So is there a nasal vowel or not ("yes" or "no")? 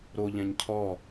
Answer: yes